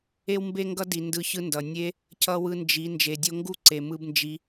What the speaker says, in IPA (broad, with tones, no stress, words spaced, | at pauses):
e˧wmbe˧ŋɡʌ˧ di˨ ndɯ˧çɯ˦ndʌ˨ nʲe˦ | cʌ˦wɯ˦nd͡ʒi˨˦ nd͡ʒe˨dʲo˧ŋɡu˦˨ǀe˨ mɯ˦bnd͡ʒi˦